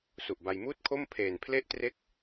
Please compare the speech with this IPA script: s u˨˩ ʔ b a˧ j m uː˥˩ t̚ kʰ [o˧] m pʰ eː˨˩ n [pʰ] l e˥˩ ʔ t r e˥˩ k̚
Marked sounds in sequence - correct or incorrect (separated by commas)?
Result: incorrect, correct